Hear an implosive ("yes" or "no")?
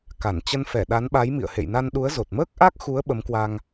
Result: yes